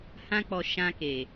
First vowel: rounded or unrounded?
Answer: unrounded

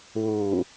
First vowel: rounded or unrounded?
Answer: rounded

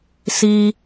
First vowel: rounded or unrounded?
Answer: unrounded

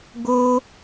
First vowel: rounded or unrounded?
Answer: rounded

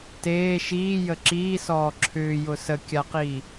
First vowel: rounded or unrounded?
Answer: unrounded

